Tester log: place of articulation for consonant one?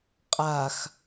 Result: uvular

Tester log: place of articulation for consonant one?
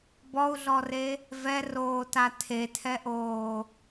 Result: labial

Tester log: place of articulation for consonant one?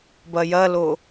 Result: labial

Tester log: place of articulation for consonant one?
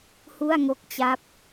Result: glottal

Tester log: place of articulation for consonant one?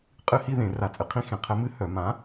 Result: uvular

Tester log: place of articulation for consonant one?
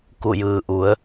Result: velar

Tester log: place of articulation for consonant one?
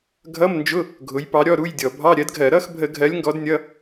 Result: velar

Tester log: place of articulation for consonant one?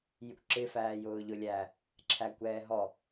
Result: palatal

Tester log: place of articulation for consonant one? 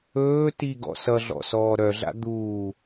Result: alveolar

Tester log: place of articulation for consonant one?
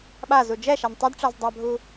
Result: labial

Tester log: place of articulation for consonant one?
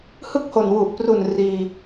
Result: glottal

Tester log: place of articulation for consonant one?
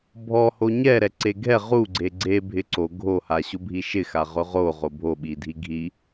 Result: labial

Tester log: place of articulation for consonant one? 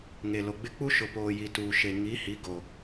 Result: velar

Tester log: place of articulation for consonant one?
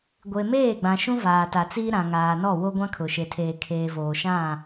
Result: velar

